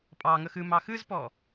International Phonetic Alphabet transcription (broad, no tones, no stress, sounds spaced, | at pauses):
pʼ ɑ ŋ ə x ɨ m ɑ x ɨ z p ɔ